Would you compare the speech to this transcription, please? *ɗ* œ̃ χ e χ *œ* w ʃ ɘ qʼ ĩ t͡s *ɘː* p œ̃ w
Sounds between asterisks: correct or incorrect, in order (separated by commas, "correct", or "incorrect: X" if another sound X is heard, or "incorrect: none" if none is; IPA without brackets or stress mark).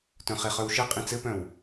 incorrect: t, correct, incorrect: ɘ